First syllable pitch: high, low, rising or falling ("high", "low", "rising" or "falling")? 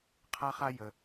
high